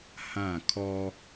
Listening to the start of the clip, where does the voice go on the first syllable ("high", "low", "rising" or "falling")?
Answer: falling